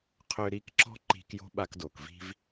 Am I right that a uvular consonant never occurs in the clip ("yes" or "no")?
no